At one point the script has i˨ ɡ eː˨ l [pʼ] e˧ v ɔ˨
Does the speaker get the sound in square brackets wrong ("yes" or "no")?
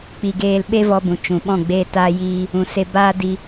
yes